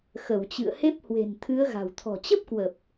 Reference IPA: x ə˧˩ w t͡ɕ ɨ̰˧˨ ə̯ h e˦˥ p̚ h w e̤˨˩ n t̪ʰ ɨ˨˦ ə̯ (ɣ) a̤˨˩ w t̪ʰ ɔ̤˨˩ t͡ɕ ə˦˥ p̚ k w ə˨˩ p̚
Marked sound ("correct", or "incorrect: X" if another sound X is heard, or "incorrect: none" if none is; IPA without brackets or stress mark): correct